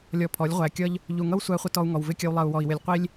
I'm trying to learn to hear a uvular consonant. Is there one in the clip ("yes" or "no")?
yes